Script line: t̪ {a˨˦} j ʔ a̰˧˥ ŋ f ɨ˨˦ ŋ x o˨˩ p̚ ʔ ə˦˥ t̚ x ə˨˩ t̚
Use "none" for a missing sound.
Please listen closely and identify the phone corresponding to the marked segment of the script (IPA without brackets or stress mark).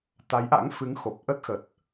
a˨˦